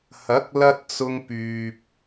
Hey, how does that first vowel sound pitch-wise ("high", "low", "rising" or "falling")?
rising